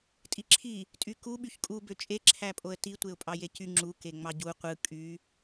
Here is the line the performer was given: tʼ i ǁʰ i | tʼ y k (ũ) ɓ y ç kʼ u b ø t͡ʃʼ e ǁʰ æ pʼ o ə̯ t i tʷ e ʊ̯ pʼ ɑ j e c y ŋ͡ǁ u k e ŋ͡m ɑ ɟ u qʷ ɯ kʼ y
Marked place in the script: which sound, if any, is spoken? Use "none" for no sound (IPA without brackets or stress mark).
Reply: u